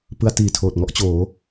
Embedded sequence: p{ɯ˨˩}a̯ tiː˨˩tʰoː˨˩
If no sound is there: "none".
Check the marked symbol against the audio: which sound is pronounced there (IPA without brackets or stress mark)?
ɯ˧